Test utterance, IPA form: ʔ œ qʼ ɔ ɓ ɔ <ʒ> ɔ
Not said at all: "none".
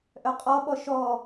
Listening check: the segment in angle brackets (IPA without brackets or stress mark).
ʃ